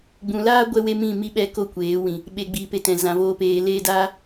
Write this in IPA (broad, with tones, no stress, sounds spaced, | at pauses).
ɡ͡b ũ˨ l aː˦ ɡʷ ɛ˦ w e˦ m ĩ˦˨ m i˧ ɓ ɛ˧ k o˧ kʷ eː˨˦ w ĩ˨ | ɓ e˨ ɡ͡b iː˨ p e˨ t ɛ̃˨ z ã˨ v oː˧ p eː˧ l eː˧ d aː˦